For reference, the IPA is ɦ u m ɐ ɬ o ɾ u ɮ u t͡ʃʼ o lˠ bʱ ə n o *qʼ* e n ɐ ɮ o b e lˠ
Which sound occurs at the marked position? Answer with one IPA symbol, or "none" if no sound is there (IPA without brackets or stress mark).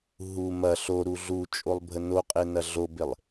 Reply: qʼ